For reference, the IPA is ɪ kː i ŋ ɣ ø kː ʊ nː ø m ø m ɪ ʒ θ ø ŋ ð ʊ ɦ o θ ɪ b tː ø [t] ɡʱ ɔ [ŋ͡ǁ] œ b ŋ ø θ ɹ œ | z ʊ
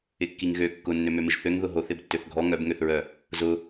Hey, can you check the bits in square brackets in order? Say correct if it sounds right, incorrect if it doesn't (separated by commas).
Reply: incorrect, incorrect